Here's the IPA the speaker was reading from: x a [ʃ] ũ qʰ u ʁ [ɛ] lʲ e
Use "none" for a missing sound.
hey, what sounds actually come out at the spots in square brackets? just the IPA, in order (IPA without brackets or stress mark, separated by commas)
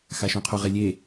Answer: ʃ, e